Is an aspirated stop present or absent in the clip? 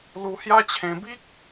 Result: present